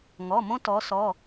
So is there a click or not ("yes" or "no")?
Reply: no